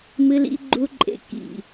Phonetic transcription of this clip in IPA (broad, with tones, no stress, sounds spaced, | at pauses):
m ɨ˨ l ḭ˨ ɡ͡ǃ u˨ ǃʼ ḛ˨ k ḭ˨